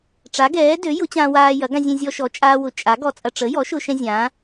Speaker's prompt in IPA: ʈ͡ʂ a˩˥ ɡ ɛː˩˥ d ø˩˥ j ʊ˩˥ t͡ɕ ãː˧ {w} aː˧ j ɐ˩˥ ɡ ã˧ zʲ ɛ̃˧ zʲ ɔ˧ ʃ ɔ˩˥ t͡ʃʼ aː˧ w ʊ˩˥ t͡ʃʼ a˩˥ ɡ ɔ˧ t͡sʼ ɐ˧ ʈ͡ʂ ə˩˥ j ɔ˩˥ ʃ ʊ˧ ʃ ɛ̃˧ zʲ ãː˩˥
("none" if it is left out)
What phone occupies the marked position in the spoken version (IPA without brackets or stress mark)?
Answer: w